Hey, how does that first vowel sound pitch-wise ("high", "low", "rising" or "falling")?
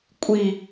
low